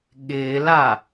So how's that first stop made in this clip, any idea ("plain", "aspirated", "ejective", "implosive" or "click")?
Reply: implosive